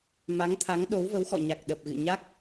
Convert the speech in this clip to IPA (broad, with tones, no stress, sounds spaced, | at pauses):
m a˨˦ ŋ t̪ʰ a˨˦ ŋ ɗ o˨˦ w v ə˨˦ w x ɔ̰˧˨ ɲ a˨˩ k̚ ɗ ə˨˩ p̚ ɣ ɨ̰˧˨ ɲ a˦˥ k̚